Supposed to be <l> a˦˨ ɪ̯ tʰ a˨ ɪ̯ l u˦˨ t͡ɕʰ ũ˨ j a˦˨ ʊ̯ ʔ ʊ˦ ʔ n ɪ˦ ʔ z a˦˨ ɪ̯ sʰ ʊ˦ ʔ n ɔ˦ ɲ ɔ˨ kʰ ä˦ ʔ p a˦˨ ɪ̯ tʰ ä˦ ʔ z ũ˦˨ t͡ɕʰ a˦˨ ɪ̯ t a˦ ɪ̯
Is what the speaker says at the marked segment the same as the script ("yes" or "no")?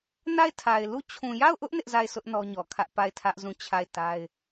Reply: no